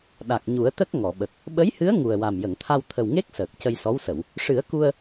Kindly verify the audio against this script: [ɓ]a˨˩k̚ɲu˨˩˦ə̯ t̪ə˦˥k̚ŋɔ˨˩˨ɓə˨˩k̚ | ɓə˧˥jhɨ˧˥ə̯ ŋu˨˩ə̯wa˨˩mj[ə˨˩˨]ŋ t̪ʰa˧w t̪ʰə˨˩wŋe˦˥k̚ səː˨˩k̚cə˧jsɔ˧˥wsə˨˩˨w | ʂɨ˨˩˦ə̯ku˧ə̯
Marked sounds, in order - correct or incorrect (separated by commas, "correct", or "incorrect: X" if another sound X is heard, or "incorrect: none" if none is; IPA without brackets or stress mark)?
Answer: incorrect: ɗ, correct